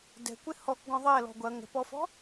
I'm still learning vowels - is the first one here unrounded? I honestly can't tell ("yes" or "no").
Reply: yes